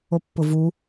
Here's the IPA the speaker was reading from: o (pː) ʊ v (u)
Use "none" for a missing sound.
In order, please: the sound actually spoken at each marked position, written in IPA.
pː, u

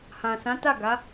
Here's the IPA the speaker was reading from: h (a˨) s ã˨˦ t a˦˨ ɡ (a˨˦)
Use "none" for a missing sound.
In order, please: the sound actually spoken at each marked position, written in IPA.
ã˨, a˨˦

